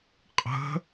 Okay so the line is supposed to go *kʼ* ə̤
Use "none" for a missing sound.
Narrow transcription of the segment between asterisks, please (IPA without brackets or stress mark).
qʼ